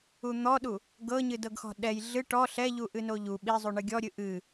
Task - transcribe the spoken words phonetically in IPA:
un̪ɔɗu | ɡɤɲɨdɤɡxɔ̤ ɗɛj ɮɨ ʈɔ ɬɛʎuʔɨ noʎu ɓizˤu ɳɨɡʲɔɾʲɨ ʔɨ

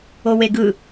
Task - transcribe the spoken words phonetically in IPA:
oweɡɯ

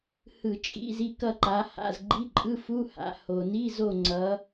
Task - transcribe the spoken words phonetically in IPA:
hɯ˧˩˧t͡ʃʼḭ˧˥˧zi˦˨ kʌ˦˨ǃa˨˦ha̰˧˥˧z ɡ͡ǃi˧˥˧ǃʼɯ˧˥˧fu˧˥˧ ha̰˨˦ ho˩ni˧˥˧zo˦˨ ŋ͡ǀʌ˨˦

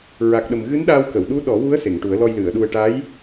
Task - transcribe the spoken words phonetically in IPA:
ɹa˨˩k̚ɗə˨˩m ɣɨ˧˥nɗa˧wkə˨˩˨wɗu˧˥ ɗɔ˨˩˦wu˧˥ə̯ se˨˩˨ŋʈu˨˩˦ə̯lɔ˧j lɨ˨˩˨ə̯ɗu˧ə̯ ʈa˧˥j

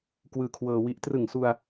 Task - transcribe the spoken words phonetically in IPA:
kwɯː˧kʰwɤː˧wi˦˥ʔ trɯ˨˩ŋsu˧a̯

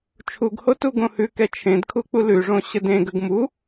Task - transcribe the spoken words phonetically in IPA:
t͡ʃʰuɡho tuɡõhʉkɛ t͡ʃʰẽdkʰu k͡pulʉʐõ ɕədẽɡəɡ mu

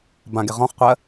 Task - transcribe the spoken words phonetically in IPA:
bãɡe ʁɔ̃χqʷɜ

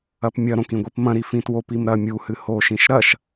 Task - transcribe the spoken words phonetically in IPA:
ɐpmʲɐɾõk ĩɡʷipmɐ̃ɾi fĩtwopim ɾɐ mʲuhɨ hoʃĩʃ ɾɐʃ

